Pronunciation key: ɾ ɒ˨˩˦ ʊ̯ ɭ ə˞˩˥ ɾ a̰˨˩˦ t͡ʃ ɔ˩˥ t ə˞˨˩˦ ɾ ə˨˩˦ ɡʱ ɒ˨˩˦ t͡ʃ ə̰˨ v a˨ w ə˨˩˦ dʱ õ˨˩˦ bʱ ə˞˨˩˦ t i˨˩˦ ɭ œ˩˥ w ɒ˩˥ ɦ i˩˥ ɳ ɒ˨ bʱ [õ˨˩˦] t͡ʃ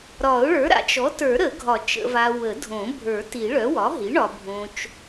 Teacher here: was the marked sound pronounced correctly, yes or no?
no